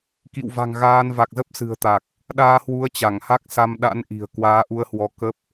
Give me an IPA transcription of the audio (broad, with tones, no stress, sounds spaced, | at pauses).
k ḭ˧˨ w v a̤˨˩ ŋ ɣ aː˧ n v a˨˩ k̚ z ə˦˥ p̚ s ɨ̤˨˩ ə̯ t̪ a˨˩ k̚ | ɗ aː˧ h w u˨˦ ə̯ t͡ɕ a˧˩ ŋ h a˦˥ k̚ s a˧ m ɗ a̰˧˥ n ʔ i̤˨˩ ə̯ k w aː˨˦ ʔ u˧ ə̯ h w ɔ˧ k ə˦˥ p̚